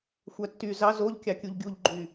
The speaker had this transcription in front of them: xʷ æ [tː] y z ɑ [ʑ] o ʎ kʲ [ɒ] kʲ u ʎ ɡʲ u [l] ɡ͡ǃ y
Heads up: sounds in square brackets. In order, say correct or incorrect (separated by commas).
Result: correct, incorrect, incorrect, incorrect